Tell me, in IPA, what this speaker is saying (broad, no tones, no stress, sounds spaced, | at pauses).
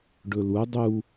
ɖ ɵ l u dˤ u